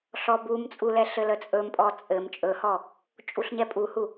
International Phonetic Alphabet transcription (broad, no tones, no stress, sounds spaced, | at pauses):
ɬ ɔ b u m t͡sʼ u l ɛ ɬ ɘ l ə t͡sʼ ɵ m pʼ ɔ t͡sʼ ɘ m t͡ʃʼ ɵ h ɔ | t͡ʃʼ u ɬ ɲ ɛ pʼ u h u